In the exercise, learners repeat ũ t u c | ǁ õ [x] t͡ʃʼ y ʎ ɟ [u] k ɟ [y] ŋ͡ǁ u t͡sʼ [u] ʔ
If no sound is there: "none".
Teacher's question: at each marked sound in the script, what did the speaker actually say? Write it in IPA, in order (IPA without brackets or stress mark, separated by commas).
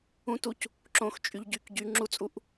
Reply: x, y, y, u